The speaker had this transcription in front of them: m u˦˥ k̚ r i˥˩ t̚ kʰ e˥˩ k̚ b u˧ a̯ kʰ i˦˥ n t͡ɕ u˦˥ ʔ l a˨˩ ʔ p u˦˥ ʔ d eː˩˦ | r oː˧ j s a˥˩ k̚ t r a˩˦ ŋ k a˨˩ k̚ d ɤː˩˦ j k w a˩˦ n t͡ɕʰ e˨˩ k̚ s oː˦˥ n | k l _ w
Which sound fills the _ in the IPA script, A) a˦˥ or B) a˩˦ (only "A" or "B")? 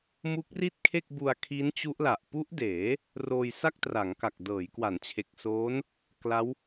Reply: A